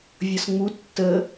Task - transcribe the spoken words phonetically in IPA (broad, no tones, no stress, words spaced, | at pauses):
vʲʌsŋ͡mu tːə